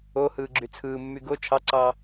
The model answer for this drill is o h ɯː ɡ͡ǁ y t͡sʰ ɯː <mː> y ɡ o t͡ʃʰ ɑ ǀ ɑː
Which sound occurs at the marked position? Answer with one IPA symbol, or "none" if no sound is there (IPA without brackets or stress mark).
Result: mː